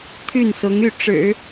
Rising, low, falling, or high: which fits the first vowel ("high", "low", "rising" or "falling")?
falling